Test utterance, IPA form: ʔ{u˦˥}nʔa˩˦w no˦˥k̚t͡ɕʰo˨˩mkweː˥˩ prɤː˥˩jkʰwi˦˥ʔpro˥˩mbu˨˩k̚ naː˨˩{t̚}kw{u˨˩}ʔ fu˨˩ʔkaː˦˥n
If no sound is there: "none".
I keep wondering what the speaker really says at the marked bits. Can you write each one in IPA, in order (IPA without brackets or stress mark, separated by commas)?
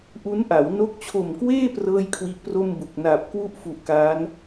u˦˥, p̚, u˥˩